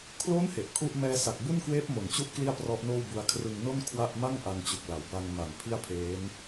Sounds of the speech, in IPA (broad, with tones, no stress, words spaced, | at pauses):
kʰlo˦˥n he˨˩ʔkʰu˥˩ʔ mɛː˧sa˨˩k̚bu˥˩nkweː˦˥p̚ mo˨˩nt͡ɕu˥˩ʔ kli˥˩a̯prɔ˦˥ʔnoː˥˩wbu˧a̯ kʰrɯ˧ŋno˥˩n kʰwa˥˩ʔ ma˥˩ŋ ʔa˧ŋt͡ɕu˨˩k̚ la˩˦wba˧ŋma˨˩n pʰi˥˩a̯pʰeː˦˥n